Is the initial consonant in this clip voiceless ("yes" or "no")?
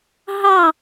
no